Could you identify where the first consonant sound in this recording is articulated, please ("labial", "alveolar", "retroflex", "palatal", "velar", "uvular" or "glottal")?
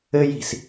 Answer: palatal